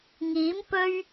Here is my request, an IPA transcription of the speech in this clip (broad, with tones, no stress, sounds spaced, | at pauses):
ŋ iː˨˥ m p ɵ˥ ɥ